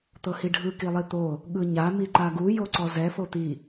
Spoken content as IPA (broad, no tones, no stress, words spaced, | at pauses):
t̪ɤhiɖʱɯ kilˠit̪o | ɠɯɲa miǃaɡu joǀɔzɛ fot̪i